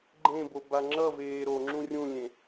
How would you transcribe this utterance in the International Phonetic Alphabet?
ɡ͡ǃ ẽ b o b a ŋ͡ǁ ʌ v eː ɾ o ŋ͡ǁ ũ rʲ ũ lʲ ẽ

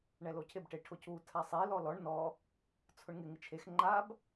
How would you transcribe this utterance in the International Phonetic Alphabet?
ɳ ɛ l o cʰ ɪ b ʈ e ʈʰ ʊ c u tʰ a sˤ e l ɔ l ɔ ɳ n ɔ | t͡sʰ ʊ ɳ ŋ ɪ ŋ ɪ t͡ʃʰ e x ŋ͡ǃ a b

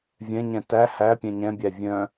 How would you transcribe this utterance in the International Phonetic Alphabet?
vʲ ɛ̃ ɲ ɛ̃ t æ h æ pʲ ɛ̃ ɲ ɛ̃ bʲ æ vʲ œ̃

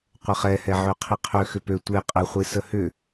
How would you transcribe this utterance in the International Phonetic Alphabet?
qʷ ə χ ɛ h ɛ ʕ ø qʰ i qʰ ø x ʏ p ø tʷ e qʼ ə χʷ i s ə h ʏ

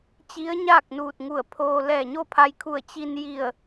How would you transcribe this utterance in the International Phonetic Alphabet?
t͡ɕ i˧˥ ə̯ ɲ aː˥˨ k̚ n uː˧˩ t̚ ŋ u˧˩ ə̯ pʰ oː˧ l ɛː˧˩ ɲ o˥˨ pʰ a˧ j kʰ u˧˩ ə̯ t͡ɕ i˧ n j i˧˩ ə̯

